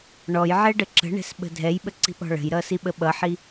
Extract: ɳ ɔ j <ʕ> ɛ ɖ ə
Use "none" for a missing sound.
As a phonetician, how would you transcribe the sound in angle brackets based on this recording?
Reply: ʕ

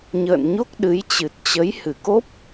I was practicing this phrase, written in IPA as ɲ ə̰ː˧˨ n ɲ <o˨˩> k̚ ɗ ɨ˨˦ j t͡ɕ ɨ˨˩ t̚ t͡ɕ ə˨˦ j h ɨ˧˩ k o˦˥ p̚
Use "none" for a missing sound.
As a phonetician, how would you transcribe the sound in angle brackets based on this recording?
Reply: o˦˥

